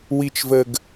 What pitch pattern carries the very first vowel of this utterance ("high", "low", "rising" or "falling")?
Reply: low